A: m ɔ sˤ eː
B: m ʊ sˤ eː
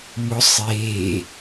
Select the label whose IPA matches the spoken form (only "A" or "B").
B